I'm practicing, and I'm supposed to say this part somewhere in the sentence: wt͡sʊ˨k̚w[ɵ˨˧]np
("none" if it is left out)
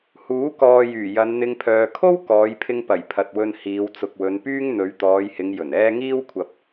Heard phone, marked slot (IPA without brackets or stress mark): ɵ˨˧